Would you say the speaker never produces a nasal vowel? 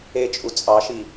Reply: yes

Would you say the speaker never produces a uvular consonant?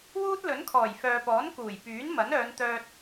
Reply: yes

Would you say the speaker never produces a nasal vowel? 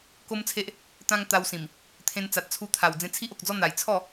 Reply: no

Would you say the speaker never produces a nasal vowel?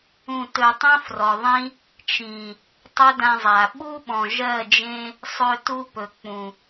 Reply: no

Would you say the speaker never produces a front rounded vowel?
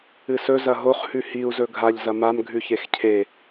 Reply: yes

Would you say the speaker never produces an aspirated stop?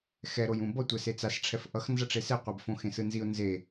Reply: no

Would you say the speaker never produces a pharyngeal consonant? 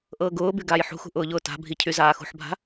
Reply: no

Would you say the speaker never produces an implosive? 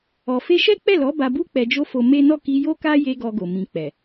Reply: yes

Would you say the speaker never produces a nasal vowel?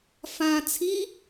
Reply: no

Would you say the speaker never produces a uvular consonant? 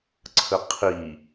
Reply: no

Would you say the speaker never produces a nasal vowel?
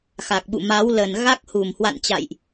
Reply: yes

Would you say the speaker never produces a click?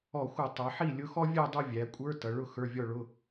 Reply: yes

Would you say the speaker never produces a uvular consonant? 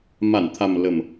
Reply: yes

